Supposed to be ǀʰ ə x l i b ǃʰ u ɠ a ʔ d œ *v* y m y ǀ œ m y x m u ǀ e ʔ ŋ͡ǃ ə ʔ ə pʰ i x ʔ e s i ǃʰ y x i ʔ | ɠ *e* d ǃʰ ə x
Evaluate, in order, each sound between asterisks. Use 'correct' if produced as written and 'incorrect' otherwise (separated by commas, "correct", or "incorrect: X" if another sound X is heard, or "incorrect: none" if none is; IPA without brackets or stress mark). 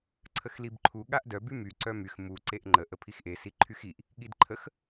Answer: incorrect: b, incorrect: i